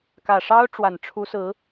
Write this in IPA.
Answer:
kä˨˩ʂɑ˥ʊ̯ ʈ͡ʂwa˨˩nʈ͡ʂʰu˧˥sɹ̩˧˥

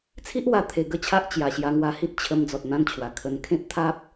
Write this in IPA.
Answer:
t͡sʰi˦ʔwa˧ t̪ʰe˧ɡə˦t͡ɕʰa˦ʔ t͡ɕja˨˩ɕja˧ŋwa˧hi˦t̚ t͡ɕʰə˧m d͡zɔ˨t̚n̪ã˧nt͡ɕʰwa˨˩ kʰə˧n kʰẽ˦p̚t̪ʰa˦p̚

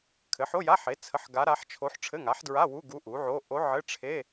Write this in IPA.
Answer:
kʰɘ˩˥ħo˧˥˧ja˧˥˧ħe˩˥ t͡sʰə˧˥˧ħɡa˧˥ɾa˧˥ħt͡ʃʰo˧˥ħ ʈ͡ʂʰɘ˧˥˧ŋa˩˥ħdɹa˧˥˧ wu˧˥˧ ɡu˧˥ʔu˩˥ʕo˧˥˧ ʔo˧˥ʕɘ˧˥˧ʈ͡ʂʰe˧˥˧

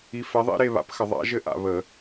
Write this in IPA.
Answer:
i˨˥fɛ˨˥ðˤḭ˦˥ ɾe˥˧βa̰˨˥pxə˧˩˧ ðˤa̰˨˥ʒɘ˦˥ ʔa̰˧˩˧βə˧˩˧

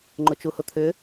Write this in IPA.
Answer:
ŋ͡ǃʊt͡ʃuhʊt̪ʰʏ

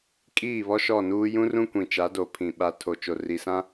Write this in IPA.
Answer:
kʼiː˦˨βɔ˦ʃɔ˦˨nuː˦ jũ˦rũ˦ kʷĩ˨t͡ʃa˨˦ do˨ pʰĩ˨ ɓa˦ tʰo˨t͡ʃo˨ ri˨sã˦

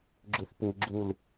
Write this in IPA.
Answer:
ɡ͡ǁuθpuɡ͡ǁul

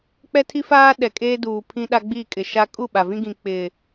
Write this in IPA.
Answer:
k͡pɛ˦tʰi˦faː˦ ɗɛ˨kʼeː˦duː˨ pʰĩ˦ ɗa˦ɡ͡bi˦˨kʼɪ˨ ʃa˦ kʼu˦˨ɓa˨vĩ˦ɡĩ˨ k͡pɪ˨

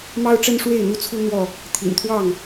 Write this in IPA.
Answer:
mɑ˦ʊ̯ʈ͡ʂə˦n ʂwe˥˨ɪ̯n̪u˦t͡sʰu˦n̪wɔ˥˨ | t̪ʰḭ˨˩nt̪ʰwɑ˥˨ŋ

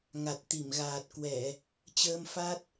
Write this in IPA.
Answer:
ŋa˨˩t̚ t̪i˧˩mɣaː˨˩t̚ kwɛ˧˩˨ | t͡ɕəː˧mfa˦˥t̚

